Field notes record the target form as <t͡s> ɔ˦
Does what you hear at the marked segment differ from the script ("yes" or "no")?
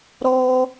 yes